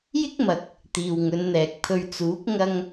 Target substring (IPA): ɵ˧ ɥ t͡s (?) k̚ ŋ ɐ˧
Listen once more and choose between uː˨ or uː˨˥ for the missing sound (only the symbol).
uː˨˥